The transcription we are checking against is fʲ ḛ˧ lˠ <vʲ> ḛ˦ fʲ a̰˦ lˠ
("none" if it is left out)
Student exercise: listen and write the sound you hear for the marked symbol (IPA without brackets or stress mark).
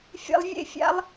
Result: vʲ